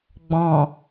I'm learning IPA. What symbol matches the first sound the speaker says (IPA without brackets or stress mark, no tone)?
ɡ͡b